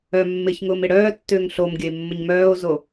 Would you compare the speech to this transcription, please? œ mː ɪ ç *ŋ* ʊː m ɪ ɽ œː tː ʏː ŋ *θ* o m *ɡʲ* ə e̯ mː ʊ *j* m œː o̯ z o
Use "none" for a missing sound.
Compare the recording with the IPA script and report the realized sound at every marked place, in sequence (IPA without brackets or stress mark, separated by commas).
ŋ, ɬ, ɡʲ, ɲ